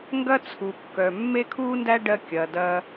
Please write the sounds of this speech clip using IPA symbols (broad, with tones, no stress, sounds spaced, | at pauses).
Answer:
ŋ ɡ ɐ˥ t͡sʰ u˩ kː œ˩ mː e˥ kʰ uː˥ n d æ˥ ɖ ɜ˧ kʲ ɐː˩ d ɐː˧